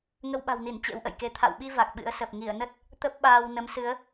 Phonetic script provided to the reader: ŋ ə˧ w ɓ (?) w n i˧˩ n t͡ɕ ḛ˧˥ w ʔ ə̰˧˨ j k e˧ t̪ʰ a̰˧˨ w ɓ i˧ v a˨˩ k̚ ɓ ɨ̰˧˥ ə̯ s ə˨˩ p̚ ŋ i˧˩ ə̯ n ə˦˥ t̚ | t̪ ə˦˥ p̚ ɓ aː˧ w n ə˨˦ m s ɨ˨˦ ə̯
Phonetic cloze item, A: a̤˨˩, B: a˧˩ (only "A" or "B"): A